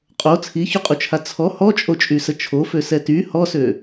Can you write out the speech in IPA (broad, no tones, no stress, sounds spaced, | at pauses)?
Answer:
qʼ o t͡sʰ i ç u qʼ u t͡ʃʰ a t͡sʰ ɔ h ɔ t͡ʃʼ o t͡ʃʼ y s ə t͡ʃʰ o f ø s ɛ t y h ɔ s ø